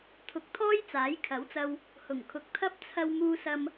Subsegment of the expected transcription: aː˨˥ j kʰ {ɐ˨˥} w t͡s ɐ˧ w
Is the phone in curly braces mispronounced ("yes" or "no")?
no